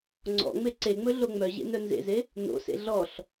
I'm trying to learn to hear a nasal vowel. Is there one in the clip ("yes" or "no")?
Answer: no